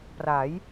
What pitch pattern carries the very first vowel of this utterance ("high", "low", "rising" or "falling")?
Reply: rising